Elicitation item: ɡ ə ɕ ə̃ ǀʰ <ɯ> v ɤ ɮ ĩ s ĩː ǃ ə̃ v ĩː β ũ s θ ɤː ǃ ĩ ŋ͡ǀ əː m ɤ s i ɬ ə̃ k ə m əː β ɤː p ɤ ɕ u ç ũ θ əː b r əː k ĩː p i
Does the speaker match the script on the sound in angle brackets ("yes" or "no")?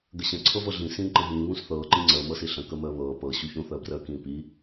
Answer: no